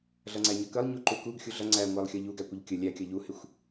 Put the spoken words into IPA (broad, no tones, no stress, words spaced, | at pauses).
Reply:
ɮʌŋ͡ǀæɲʌkəlˠ ɲuǃukuɡ xʲuɮʌ ŋ͡ǀæŋʷælˠxʲʌ ʎuɡækʷəʎ kʲə lʲækʲʌ ʎuhɪxʷ